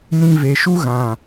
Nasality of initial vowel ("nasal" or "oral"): nasal